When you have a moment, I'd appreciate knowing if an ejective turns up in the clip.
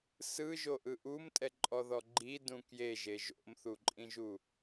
yes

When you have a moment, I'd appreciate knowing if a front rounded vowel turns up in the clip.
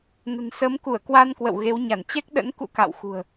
no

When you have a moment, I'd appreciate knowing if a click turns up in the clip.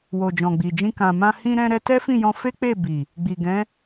no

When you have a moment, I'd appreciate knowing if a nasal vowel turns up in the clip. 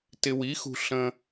yes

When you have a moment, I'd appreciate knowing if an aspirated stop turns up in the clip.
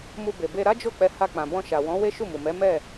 no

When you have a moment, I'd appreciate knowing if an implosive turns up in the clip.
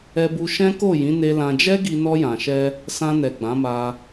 no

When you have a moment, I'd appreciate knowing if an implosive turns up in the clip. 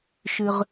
no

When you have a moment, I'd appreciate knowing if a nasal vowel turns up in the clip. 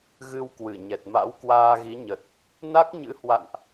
no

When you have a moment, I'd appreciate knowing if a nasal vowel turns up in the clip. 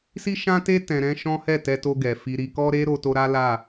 yes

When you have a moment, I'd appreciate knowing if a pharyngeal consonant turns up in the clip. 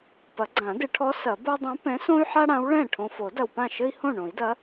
yes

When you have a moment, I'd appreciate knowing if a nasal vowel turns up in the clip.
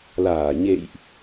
no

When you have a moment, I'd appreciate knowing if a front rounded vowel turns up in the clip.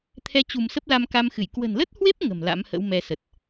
no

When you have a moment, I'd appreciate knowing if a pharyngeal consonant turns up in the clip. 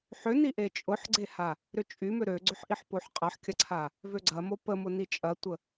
yes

